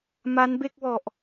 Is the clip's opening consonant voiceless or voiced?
voiced